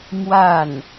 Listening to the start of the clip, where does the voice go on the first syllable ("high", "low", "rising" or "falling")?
falling